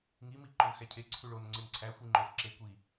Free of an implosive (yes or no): yes